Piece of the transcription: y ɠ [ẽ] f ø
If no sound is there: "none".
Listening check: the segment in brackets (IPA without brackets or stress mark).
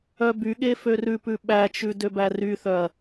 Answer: e